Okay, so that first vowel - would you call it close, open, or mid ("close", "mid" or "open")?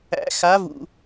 open